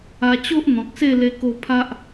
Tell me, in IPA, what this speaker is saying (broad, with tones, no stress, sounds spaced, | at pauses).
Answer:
a˧ t͡ɕ o˦ ʔ n̪ ɔ̃˨ k̚ s e˥˧ l e˧ k o˧ pʰ a˦ ʔ